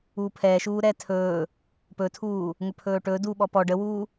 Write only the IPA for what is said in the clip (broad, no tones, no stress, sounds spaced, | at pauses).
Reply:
uː pʰ ɛː ʃ uː ɾ ɛː tʰ ɵː | p ɵ tʰ uː | ŋ ɵ pʰ ɵː ʈ ɵː d uː ɓ ɔ p ɔ ɖ ə w uː